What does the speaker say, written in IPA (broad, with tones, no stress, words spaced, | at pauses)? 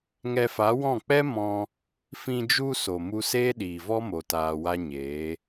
ŋɛ˧fa˨˦wɔ̃˦˨k͡pɛ˦ mɔ̃˧ | fĩ˧d͡ʒu˧ so˨mu˧ seː˦ɗiː˨vɔ˦ mo˧taː˧wa˦ɲeː˨˦